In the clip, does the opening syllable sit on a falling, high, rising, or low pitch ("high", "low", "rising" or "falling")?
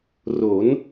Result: rising